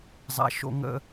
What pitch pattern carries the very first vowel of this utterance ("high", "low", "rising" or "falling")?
high